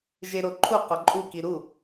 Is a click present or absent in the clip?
present